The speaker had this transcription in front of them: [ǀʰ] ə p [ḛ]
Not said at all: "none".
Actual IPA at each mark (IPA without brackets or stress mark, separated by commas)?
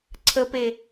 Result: ǀʰ, e